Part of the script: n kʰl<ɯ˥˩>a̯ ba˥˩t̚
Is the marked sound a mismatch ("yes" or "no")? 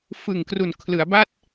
yes